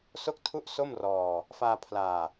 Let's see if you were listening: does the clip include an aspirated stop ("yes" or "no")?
yes